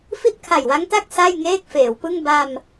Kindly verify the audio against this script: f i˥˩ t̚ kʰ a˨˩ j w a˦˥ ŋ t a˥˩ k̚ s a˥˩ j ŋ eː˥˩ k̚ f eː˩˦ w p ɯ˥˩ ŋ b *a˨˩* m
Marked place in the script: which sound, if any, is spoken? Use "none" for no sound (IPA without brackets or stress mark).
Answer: a˧